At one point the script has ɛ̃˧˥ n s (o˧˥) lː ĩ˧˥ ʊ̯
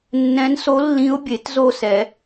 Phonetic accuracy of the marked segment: correct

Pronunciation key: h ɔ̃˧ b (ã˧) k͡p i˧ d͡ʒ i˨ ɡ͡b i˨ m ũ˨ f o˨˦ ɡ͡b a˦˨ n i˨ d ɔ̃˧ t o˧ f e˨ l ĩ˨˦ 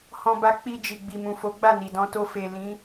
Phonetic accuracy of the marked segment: incorrect: a˧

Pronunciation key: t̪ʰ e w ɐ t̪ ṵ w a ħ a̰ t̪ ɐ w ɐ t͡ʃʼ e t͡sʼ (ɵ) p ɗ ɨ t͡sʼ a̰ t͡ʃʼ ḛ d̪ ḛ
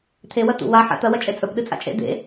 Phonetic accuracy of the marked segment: correct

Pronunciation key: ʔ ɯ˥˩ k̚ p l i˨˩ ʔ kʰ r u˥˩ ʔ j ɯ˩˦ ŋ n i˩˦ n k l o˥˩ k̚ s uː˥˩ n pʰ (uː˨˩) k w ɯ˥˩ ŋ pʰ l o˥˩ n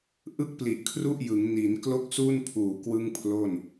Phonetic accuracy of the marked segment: correct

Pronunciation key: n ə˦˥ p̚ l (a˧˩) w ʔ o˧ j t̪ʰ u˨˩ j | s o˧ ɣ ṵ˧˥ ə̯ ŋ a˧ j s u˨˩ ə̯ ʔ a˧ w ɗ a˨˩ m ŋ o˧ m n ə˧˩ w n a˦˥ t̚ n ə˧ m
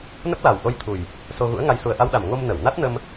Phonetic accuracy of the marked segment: incorrect: a˨˩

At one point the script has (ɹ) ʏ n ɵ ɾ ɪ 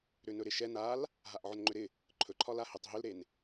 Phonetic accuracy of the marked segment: incorrect: ɾ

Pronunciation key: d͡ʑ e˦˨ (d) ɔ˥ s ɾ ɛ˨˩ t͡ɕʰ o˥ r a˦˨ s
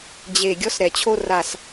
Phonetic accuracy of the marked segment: incorrect: ɡʲ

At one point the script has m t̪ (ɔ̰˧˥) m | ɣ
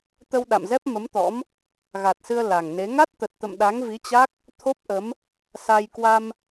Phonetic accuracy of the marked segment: correct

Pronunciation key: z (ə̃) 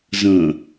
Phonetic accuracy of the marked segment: correct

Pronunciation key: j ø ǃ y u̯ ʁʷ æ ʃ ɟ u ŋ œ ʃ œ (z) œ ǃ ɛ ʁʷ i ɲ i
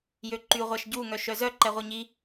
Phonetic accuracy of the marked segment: correct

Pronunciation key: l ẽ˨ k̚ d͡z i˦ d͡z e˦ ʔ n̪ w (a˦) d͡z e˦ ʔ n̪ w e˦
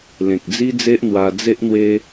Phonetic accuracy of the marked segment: incorrect: a˧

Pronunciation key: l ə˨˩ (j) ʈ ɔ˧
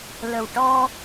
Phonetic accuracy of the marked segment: incorrect: w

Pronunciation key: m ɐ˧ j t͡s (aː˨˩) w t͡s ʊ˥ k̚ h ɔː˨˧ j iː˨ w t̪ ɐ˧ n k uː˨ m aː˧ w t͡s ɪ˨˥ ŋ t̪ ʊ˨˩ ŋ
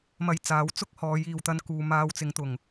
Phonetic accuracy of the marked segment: incorrect: aː˨˥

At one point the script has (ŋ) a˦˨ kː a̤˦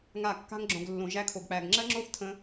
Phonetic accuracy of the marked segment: correct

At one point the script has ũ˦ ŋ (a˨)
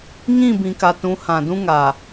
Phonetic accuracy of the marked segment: correct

